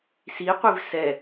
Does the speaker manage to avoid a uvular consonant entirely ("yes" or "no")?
no